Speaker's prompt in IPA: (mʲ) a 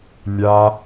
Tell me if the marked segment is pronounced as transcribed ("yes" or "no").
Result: yes